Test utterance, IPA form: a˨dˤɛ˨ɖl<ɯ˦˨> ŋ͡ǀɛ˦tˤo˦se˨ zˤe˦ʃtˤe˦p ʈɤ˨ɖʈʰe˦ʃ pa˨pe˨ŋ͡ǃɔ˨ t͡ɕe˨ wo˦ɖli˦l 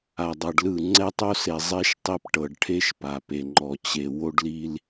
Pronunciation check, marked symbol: correct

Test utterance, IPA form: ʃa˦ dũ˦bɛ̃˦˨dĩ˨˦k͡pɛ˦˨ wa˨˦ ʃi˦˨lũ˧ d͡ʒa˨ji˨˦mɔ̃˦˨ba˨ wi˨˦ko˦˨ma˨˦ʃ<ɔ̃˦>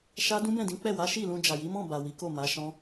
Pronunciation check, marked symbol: correct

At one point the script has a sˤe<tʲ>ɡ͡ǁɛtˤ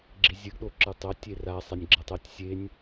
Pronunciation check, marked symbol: incorrect: nʲ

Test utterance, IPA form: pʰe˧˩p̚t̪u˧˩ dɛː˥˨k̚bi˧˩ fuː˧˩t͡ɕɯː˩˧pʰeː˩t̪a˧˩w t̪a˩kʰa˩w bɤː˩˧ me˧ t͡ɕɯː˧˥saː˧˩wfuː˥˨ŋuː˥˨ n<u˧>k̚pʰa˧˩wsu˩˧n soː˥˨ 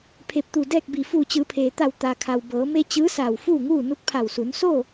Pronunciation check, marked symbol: incorrect: u˧˥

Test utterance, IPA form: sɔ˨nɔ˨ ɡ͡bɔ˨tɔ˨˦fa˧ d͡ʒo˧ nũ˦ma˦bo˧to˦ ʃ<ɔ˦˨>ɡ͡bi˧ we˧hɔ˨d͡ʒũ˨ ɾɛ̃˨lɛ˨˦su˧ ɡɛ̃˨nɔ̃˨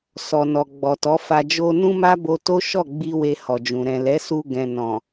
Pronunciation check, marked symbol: correct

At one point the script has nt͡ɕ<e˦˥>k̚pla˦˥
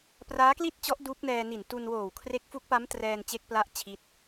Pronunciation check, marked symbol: correct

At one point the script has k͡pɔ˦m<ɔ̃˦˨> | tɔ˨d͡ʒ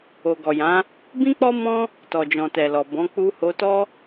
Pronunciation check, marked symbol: incorrect: ɔ̃˦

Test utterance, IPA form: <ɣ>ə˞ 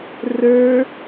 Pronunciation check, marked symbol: incorrect: r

